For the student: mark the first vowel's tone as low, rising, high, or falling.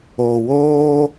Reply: low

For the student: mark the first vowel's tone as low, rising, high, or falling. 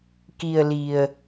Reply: low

